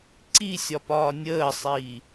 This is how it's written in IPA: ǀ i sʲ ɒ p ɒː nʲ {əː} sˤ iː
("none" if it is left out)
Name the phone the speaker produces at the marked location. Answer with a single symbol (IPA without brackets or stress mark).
əː